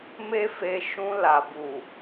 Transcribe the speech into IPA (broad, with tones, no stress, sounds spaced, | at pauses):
m e˦ f e˧ ʃ ũ˧ l a˨ b u˨